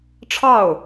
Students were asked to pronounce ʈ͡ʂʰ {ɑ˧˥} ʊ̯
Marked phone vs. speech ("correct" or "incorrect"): incorrect